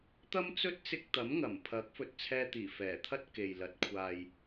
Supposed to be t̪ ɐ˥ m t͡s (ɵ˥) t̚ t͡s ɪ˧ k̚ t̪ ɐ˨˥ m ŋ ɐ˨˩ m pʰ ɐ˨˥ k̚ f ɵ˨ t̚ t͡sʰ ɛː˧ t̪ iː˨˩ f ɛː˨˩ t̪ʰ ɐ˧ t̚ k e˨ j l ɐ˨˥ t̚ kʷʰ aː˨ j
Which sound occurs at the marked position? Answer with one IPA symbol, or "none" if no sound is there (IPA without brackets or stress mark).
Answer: ɵ˥